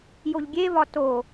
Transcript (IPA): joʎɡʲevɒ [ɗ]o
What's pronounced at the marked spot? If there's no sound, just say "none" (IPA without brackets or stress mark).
t